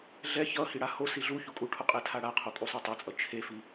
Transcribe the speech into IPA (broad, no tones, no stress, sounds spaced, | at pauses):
ɮ ɛ ç ʌ h i ɽ a h o s i ɮ u ç u kʼ u ʈʰ o qʼ e tʰ a ɽ a qʰ o kʼ u sˤ u tˤ o t͡sʼ ʌ t͡ʃʰ e f i